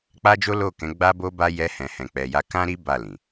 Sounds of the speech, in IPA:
k͡p a˦ d͡ʒ o˦ l o˦˨ k ɛ̃˨˦ ɡ͡b a˦ b o˦ b a˦ j ɛ˧ h ɛ̃˨ h ɛ̃˨ k͡p ɛ˨ j a˧ k ã˦ ɾ i˦ b a˦˨ l ĩ˨

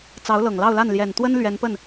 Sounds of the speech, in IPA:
t͡s ɑ˧˥ ʊ̯ l ɤ˨˩ ŋ l ɑ˥˧ ʊ̯ l a˥˩ n l j ɛ˨˩ n t̪ w ə˥ n l ɥ ɛ˧˥ n p ə˥˩ n

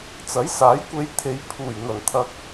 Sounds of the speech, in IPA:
t͡s ɐ˨˥ j s aː˨˥ j kʷ e˧ j t̪ʰ e˨˧ j pʰ uː˨˩ j n̪ ɐ˨˩ n t̪ʰ ɐ˧ k̚

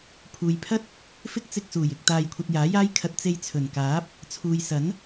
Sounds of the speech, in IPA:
pʰ uː˨ j pʰ ɐ˥ t̚ | f ɪ˥ k̚ t͡s ɪ˧ k̚ s uː˨˩ j ɪ˧ k̚ t̪ aː˧ j kʷʰ ɐ˧ t̚ j aː˨˥ j aː˥ j kʰ ɐ˧ t̚ t͡s e˧ j t͡sʰ ɵ˨˩ n k aː˨˥ p̚ | t͡sʰ uː˨ j s ɐ˨˥ n

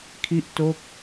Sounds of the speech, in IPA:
kʰ i˥˩ ʔ t o˥˩ k̚

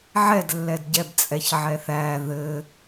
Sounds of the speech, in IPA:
ʕ ɛ d lː ɛ d ɟ ɛ b t͡sʼ ɛ ç ʕ ɛ θ æ ð ɘ

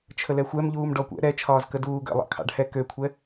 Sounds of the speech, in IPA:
t͡ʃʰ ə l ɛ xʷ ɛ m ʎ uː m ɖ ɔ kʷ ɛ̰ ɾ ɛ t͡ʃʰ ɒː z k ə d uː ɡ ə̰ lˠ ɑ̰ kʰ ɑ̰ ɖ h ɛ k ø kʷʰ ɛ

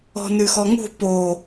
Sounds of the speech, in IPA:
ɔ̤ n ʉ x ɔ ŋ ṳ p o

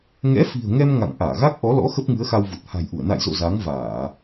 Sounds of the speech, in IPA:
ŋ ɛ̰˧˥ f i̤˨˩ ə̯ ŋ ɛ˧ m ŋ a̰˧˨ ŋ ʔ aː˧˩ ɣ a˦˥ k̚ ʔ ɔ˨˦ l ɔ̰˧˥ x ə˦˥ p̚ ŋ ɨ˨˦ ə̯ x a˧ w v u˨˩ t̚ h a̤˨˩ j ʔ u˧˩ ə̯ n a̰˧˨ j z o̰˧˨ z a˨˦ ŋ v aː˧˩˨

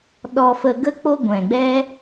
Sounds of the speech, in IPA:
ɗ ɔ˧ f ə˧ ɡ ə˦ k͡p o˦ ɡʷ ɛ̃˨ ɡ͡b ɛ˦

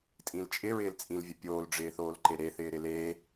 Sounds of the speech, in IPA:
tʼ ĩ l t͡ʃʼ ɪ ɹ ɪː l t͡sʼ ĩ l vʲ ʊ pʲ oː l ɖ͡ʐ ɪː θ oː l ǃ e ɾ e θ ɪː ɾ ɪ l e

